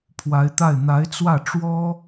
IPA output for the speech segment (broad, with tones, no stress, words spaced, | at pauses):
pʰwa˧˥ɪ̯t̪a˥˩ɪ̯ n̪a˧˥ɪ̯t͡swä˥˩ ʈ͡ʂwɔ˥